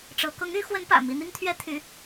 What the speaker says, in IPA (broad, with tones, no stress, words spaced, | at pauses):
ʈ͡ʂɤ˧˥ kʊ˧˥ŋy˧˥ xwə˧˥npä̰˨˩ mi˧˥n̪i˥ŋt̪ʰɥɛ˥ t̪ʰy˧˥